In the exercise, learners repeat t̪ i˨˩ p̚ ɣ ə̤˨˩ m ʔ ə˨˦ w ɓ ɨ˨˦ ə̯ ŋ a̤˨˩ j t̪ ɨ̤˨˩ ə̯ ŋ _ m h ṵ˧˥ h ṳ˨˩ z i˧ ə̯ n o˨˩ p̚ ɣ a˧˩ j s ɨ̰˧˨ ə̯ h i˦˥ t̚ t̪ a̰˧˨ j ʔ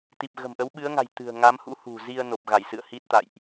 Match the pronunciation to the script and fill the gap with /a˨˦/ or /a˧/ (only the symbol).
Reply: a˨˦